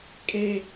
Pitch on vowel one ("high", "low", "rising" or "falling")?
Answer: high